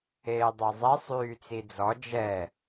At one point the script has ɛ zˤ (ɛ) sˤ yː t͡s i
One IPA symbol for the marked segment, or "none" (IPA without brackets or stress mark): ɛ